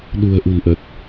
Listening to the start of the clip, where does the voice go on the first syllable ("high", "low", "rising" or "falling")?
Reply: low